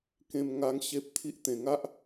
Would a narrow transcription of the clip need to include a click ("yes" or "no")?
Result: no